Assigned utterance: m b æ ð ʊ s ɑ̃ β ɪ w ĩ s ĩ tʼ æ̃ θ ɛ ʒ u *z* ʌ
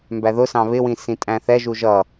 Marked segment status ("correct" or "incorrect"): incorrect